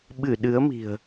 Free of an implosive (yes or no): no